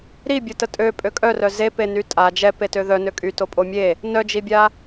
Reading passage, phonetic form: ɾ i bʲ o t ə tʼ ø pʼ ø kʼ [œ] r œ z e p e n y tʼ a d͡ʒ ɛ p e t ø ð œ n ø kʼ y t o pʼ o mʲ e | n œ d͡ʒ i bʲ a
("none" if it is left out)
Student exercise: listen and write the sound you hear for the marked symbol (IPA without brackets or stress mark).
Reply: œ